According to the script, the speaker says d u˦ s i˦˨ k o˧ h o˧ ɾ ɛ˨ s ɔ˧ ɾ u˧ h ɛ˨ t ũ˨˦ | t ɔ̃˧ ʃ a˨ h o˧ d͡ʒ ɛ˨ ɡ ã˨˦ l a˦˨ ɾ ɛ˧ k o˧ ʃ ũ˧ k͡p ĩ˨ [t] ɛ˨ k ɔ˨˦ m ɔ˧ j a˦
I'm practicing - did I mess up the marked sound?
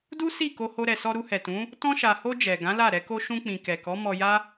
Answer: yes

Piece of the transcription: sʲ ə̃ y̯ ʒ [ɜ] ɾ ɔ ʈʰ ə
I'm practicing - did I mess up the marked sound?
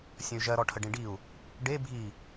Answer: no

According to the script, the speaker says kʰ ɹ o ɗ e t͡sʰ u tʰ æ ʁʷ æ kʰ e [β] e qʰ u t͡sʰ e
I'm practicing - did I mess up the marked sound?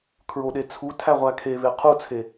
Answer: no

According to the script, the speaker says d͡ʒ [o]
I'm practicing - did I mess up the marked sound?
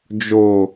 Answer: no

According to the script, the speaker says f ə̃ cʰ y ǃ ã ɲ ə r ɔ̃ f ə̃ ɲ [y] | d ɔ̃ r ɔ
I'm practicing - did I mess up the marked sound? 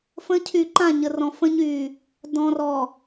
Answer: no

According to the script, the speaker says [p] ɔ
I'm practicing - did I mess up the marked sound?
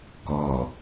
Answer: yes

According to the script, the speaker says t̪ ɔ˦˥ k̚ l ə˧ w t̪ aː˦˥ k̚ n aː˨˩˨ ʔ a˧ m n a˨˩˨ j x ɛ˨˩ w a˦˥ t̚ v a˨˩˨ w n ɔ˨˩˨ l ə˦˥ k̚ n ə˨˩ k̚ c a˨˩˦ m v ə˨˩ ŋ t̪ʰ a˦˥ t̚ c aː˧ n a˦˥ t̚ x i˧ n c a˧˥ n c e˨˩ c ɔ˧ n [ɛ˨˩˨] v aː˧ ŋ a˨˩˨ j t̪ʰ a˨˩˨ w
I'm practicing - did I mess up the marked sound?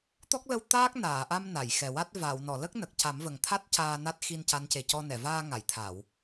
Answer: no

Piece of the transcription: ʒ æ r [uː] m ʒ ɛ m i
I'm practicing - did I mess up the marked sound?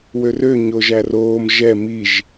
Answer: yes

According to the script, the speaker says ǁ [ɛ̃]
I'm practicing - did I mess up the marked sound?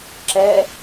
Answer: yes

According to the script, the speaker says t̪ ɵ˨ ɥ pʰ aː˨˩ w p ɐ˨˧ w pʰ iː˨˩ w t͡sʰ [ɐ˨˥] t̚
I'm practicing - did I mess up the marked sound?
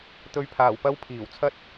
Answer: yes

